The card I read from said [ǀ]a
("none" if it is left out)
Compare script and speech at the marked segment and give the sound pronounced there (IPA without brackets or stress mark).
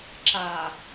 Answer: ǁ